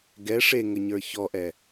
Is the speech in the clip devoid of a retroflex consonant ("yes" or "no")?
no